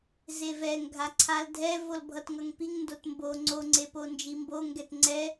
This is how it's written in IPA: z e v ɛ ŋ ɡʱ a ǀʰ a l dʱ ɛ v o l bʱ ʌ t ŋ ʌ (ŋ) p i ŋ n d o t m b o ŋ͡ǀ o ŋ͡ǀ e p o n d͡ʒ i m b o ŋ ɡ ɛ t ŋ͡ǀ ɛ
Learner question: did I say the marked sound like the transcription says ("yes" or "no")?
yes